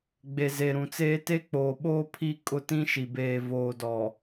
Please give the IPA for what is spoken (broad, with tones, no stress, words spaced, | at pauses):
ɡ͡be˨ze˨ɾũ˨t͡seː˦ te˦k͡poː˨ɓoː˦ pʰi˦ kʼʊ˦tĩ˦ʃi˨ beː˨voː˨dɔ˨